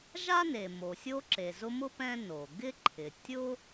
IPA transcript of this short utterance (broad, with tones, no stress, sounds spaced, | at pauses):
ʒ a˥ n e˩ m o˩ sʲ o˦ ǁ e˩ z ʊ˦ m ʊ˥ p ɛ̃˦ n o˩ ɡ ɪ˥ ǃʰ ɪ˩ tʲ ʊ˥